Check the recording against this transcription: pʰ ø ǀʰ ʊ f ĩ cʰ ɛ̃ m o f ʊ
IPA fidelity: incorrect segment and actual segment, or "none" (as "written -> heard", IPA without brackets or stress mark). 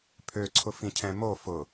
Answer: none